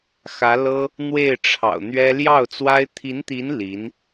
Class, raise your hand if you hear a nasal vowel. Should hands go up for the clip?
no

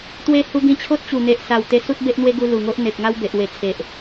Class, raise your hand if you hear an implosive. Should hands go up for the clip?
no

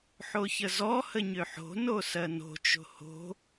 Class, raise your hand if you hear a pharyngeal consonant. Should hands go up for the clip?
yes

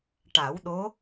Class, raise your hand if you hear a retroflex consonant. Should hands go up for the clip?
yes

